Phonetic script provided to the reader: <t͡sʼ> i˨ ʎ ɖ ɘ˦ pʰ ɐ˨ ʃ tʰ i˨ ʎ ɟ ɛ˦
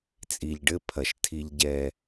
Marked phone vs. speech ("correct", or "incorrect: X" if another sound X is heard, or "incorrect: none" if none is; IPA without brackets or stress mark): correct